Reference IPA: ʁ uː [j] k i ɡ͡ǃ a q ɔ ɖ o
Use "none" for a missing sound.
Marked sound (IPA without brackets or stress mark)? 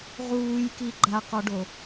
j